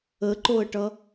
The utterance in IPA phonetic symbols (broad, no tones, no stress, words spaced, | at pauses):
əǃoə̯ʈʌ